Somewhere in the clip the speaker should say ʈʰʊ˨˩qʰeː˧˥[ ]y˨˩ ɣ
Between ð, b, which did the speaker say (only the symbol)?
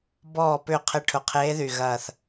ð